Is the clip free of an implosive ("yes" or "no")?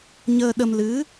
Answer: no